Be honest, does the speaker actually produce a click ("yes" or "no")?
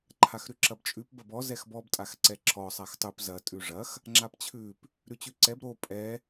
yes